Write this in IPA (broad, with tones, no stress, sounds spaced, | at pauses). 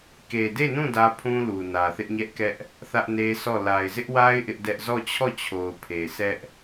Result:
k e˨ d e˦˨ n ũ˦˨ d ä˦ pʰ ũ˦ l u˨ n ä˨ θ ɪ˦ ʔ ɲ ɛ˦ ʔ k ɛ˦ ʔ | θ ä˦ ʔ n e˦ sʰ ɔ˦˨ l a˨ ɪ̯ z ɪ˦ ʔ w a˦ ɪ̯ ʔ ɪ˦ ʔ d ɛ˦ ʔ z ɔ˦˨ t͡ɕʰ ɔ˦˨ t͡ɕʰ o˨ ʊ̯ pʰ e˨ s ɛ˦ ʔ